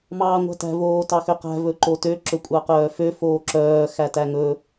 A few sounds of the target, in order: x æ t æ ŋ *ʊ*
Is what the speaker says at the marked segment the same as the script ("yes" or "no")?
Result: no